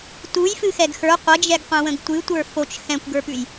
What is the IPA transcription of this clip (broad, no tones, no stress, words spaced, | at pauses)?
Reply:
tujfɨ xɛɡxə˞ qʷəd͡ʒɛɡqʷɛ̃wə̃ɡ tʷɨ tʷə˞fot͡ʃ xɛ̃kʷɡə˞pʉj